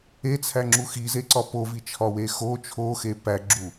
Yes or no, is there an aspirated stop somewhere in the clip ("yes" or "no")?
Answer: yes